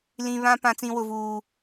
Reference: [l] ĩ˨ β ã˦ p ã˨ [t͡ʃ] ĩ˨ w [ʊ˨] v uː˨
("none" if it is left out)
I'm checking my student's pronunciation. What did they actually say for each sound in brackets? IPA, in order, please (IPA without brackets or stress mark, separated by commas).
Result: l, t͡s, ʊ˨